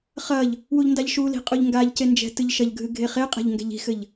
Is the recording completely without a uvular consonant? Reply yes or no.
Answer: no